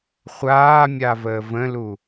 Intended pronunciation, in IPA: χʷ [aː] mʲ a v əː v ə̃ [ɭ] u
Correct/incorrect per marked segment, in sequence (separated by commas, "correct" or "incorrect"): correct, incorrect